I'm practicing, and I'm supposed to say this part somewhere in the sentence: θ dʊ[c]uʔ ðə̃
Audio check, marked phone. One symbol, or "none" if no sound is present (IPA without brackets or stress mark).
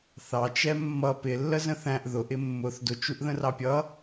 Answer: t͡ʃ